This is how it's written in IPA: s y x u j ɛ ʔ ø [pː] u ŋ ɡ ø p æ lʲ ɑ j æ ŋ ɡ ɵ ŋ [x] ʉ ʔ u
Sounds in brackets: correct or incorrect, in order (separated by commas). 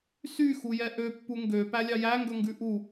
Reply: correct, incorrect